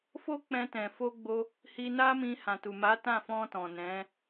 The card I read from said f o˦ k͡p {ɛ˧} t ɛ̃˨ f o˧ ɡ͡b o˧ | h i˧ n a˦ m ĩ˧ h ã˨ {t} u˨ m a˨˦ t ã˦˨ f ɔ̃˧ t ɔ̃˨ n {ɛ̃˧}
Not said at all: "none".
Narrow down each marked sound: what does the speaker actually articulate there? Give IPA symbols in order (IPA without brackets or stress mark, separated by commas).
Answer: ɛ̃˧, t, ɛ̃˨˦